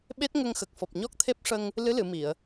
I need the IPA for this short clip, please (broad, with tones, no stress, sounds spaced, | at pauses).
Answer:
ɓ e˦˥ t̚ ŋ ə˧ ŋ x ə˨˩ k̚ f ɔ˨˩ p̚ ɲ ɔ˦˥ k̚ t̪ʰ e˦˥ p̚ ʂ ə˧ ŋ | l ɨ˧˥ l ɨ˨˩˨ m i˨˩˨ ə̯